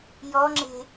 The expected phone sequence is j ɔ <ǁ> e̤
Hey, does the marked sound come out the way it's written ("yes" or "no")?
no